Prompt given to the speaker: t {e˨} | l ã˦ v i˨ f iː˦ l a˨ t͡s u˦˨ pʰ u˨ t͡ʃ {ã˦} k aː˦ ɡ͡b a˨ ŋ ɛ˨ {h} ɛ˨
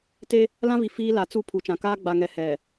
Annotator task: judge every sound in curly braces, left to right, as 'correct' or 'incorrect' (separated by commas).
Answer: incorrect, incorrect, correct